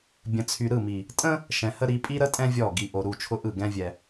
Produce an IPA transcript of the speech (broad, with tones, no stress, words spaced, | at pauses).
bʲə̃˨ t͡sʰy˨ ɾɯ˦˨mi˨ | tʼə̃˦ | ʃɛ̃˨hə˦ɾi˨˦ pʼi˦ɾə˦tʼɛ̃˦ vʲɔ˦˨ ɡi˨ʔo˨ ɾu˦˨t͡ʃʰʊ˦ʔɯ˦˨ ɡɛ̃˦vʲɛ˨